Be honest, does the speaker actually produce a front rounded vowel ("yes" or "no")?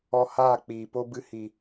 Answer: no